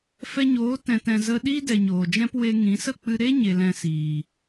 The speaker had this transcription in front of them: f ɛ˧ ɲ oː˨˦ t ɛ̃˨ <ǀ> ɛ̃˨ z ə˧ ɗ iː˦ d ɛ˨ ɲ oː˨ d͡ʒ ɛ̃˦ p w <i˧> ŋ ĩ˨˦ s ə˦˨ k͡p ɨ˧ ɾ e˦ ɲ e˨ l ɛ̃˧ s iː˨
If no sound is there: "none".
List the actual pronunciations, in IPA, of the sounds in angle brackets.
t, e˧

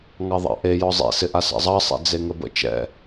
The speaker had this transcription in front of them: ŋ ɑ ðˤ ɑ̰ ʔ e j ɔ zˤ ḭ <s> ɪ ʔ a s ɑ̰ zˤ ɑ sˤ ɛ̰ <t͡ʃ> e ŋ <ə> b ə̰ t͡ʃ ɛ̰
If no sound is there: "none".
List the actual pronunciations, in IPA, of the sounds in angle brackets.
s, d͡z, ə

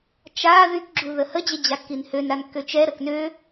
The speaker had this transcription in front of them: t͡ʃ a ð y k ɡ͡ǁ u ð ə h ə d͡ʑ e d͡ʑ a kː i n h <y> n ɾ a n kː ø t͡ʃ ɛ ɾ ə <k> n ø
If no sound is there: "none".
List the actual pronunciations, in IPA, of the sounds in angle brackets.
ø, k

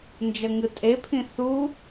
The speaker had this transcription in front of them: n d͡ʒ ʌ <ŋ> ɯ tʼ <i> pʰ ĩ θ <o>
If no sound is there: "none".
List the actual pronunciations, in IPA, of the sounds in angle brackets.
ŋ, e, u

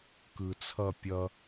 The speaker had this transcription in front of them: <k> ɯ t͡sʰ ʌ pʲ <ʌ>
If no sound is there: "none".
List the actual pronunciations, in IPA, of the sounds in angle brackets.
k, ʌ

